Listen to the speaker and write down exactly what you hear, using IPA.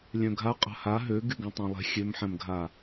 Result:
lʲ œ̃ ɡʱ a qʼ a̤ h a ɦ ø ɡ y ɡ ɛ̃ tˤ ẽ lˠ ɛ̤ xʲ ø m ħ ɛ̃ m ɡʱ a

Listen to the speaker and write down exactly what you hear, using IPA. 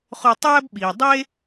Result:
χ o˧ tˤ æː˦ b ɓ iː˨ dˤ e˦

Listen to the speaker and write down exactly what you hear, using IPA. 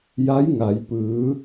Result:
j a˧˥ j ŋ a˩ j p ɯː˩˧

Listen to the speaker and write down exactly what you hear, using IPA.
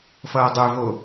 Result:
f ʌː dˤ ø v o

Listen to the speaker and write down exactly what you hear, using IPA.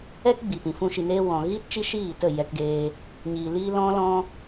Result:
ɛ˦ k ɡ͡b i˨ p ĩ˨ f ũ˧ ʃ i˧ n eː˦ w ɔ̃˨ ɣ iː˦ t t͡ʃ i˦ ʃ iː˦˨ t ə˦˨ j ɛ˧ k ɡ eː˧ | ɲ iː˨ l iː˧ l ɔ̃˦ l ɔ̃˦

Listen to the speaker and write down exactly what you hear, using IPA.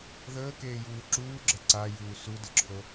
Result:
ð əː k eː j uː ǁ uː ɡ͡ǁ ɘ ǀ a j uː s u d ɘ ǁʰ o

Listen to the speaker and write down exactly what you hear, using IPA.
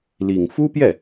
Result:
l i˨˩ ŋ f u˥ p j ɛ˥˩

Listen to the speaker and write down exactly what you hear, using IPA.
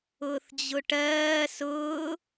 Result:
ʊː θ d͡ʑ ʊ ʈ ɜː s ʊː

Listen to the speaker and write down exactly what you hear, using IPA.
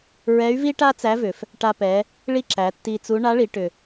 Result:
ɹ ɛ˧˥ y̯ v i˥ ʈ a˥ t͡s æ˧˥ v ʏ˩ f | ʈ a˧ p ɛ˩˧ | ɭ i˥ ǁ æ˩˧ tː i˧ t͡s u˧˥ ɳ a˧˥ ɭ i˩˧ ʈ ʏ˩

